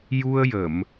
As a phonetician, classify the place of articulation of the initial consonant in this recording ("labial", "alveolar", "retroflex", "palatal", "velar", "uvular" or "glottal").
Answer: palatal